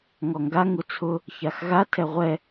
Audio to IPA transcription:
ŋɔŋɡa ŋut͡sʰʊ | çaxɣa tʰɛʁʷɛ

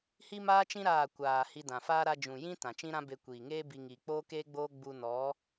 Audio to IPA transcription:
hi˦maː˦t͡ʃĩ˦ ɾaː˦˨ kʷaː˨ hi˧dã˨faː˦ ɾa˧d͡ʒũ˨ jĩ˦ tã˨t͡ʃĩ˦ɾã˦ be˧kʷiː˨ŋeː˦bi˧ ŋiː˨k͡poː˦keː˦ɡ͡boː˦ ɡ͡bu˧nɔ˨˦

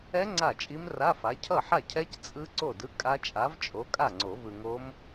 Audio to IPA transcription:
ɛ˦˥ ŋ͡ǀa˥˩t͡ʃʼi˦˥mra˧˥˧fa˨˥ cʰʌ˥˩ħa˥˩cʰɛ˦˥c t͡sʼɯ˦˥ ǀo˥˩dɯ˧˥˧kʼa˦˥ t͡ʃʼa˨˥vt͡ʃʼo˨˥ kʼa˥˩ŋ͡ǀo˨˩˦vɯ˨ŋo˦˥m

